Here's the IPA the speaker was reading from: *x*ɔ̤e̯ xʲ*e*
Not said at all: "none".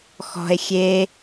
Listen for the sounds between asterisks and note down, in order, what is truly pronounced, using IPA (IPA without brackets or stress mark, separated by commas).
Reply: x, e